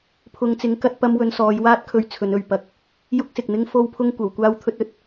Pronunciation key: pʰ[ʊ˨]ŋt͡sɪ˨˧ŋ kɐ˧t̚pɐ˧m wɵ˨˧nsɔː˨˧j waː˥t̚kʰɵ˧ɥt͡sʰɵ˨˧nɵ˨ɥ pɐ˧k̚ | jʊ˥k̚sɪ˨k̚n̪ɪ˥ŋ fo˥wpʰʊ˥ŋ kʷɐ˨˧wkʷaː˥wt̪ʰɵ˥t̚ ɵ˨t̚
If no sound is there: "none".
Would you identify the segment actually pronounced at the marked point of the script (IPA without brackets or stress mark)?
ʊ˨